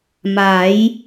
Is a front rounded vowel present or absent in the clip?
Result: absent